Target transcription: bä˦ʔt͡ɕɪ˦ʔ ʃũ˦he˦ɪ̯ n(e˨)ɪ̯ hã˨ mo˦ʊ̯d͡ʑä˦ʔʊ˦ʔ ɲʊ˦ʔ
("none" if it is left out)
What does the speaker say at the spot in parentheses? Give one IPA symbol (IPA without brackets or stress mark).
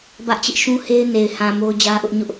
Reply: e˨